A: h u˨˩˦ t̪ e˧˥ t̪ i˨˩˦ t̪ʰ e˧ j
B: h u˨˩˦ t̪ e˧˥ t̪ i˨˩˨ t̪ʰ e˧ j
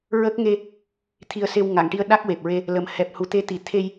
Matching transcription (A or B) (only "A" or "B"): B